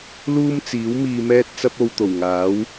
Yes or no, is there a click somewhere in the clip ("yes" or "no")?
no